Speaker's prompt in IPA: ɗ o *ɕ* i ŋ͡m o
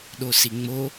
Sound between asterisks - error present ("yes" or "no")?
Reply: yes